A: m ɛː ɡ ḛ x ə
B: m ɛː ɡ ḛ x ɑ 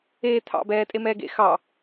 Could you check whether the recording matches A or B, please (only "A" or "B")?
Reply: B